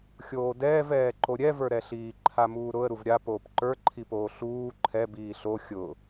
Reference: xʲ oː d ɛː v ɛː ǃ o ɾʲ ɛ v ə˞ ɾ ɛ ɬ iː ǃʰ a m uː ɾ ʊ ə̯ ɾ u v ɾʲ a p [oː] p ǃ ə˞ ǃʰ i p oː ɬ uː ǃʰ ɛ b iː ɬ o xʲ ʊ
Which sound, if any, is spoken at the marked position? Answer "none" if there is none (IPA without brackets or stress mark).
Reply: oː